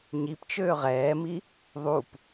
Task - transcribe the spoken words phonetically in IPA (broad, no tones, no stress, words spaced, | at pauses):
ɲipt͡ʃøː ʁɛːmi | ðˤup